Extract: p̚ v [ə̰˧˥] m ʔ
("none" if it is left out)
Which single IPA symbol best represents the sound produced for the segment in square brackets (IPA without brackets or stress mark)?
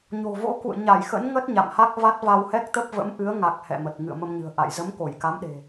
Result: ə̰˧˥